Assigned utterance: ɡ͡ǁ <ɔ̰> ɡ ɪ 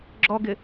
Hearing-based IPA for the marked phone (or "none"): ɔ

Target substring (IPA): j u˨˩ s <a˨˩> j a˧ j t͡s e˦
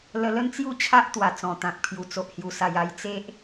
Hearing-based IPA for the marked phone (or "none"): a˨˩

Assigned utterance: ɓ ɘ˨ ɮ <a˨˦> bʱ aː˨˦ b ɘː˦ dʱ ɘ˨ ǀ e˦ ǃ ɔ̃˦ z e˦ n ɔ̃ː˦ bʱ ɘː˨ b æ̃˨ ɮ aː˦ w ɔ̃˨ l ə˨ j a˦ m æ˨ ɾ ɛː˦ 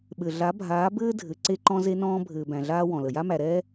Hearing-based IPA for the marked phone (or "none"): a˨˦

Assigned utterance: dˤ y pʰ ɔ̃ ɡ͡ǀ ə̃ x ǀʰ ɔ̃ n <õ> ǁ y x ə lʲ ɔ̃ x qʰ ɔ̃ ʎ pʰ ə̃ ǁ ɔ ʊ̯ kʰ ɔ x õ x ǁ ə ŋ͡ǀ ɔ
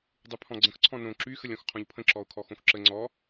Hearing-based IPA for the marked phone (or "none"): õ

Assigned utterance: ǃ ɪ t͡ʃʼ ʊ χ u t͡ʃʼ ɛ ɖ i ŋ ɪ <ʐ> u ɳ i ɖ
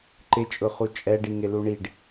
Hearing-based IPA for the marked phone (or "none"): l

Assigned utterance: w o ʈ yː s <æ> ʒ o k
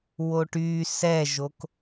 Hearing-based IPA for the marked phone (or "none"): ɛ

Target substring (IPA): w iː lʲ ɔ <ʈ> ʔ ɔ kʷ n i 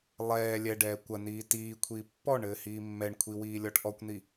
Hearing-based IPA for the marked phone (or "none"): ʈ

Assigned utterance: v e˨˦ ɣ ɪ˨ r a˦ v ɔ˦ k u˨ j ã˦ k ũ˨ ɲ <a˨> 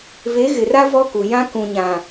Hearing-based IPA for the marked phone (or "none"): ã˨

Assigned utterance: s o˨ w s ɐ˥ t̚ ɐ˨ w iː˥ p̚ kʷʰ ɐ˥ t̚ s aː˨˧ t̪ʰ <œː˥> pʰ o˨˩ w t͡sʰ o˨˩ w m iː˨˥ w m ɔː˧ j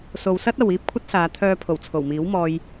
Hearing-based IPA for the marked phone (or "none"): œː˧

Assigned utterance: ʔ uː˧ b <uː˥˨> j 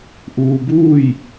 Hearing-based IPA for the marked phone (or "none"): uː˥˨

